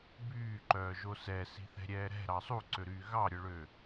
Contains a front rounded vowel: yes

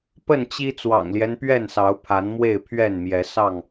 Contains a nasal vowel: no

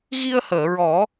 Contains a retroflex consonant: no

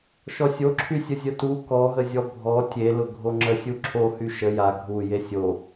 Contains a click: yes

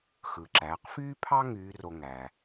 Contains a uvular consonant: yes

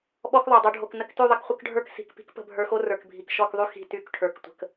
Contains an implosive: yes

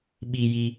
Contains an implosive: yes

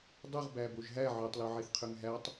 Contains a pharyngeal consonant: yes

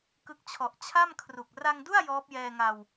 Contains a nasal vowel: no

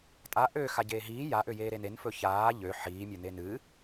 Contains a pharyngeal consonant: yes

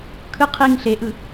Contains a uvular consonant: yes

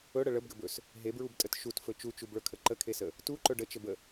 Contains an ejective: yes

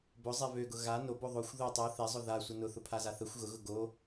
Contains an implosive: no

